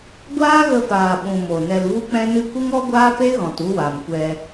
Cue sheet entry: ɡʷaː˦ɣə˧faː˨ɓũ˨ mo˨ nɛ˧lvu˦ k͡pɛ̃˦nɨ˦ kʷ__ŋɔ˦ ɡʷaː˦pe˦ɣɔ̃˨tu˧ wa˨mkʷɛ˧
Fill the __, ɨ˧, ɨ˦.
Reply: ɨ˦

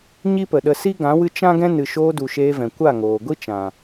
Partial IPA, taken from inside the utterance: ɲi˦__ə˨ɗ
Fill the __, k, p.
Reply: p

